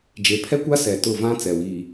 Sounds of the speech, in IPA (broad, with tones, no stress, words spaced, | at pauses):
d͡ʒe˨pʰɛ˦kʷa˦ sɛ˨tʊ˦˨vã˦ t͡sɛ˨wiː˨